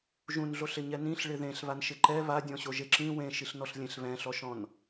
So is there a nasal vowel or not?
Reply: yes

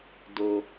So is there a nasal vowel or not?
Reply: no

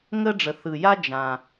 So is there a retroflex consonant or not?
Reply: yes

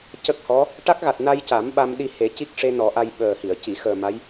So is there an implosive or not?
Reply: yes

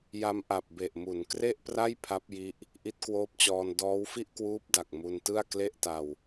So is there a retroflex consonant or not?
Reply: no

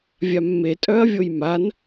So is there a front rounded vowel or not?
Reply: yes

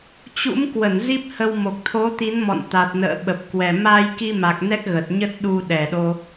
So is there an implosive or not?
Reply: yes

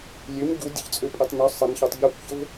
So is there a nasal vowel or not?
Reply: no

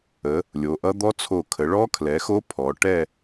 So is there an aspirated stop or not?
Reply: yes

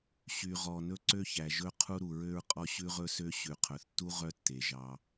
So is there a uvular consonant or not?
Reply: yes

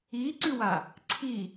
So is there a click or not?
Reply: yes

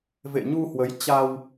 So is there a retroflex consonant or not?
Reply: no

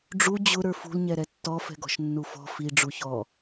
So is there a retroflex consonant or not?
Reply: yes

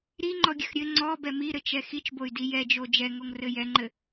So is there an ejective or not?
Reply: no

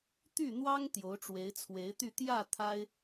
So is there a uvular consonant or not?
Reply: no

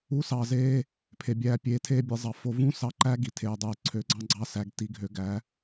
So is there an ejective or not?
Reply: no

